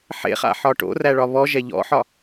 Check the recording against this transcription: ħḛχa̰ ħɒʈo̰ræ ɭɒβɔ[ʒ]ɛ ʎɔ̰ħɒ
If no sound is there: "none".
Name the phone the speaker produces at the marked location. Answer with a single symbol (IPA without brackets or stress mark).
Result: ʒ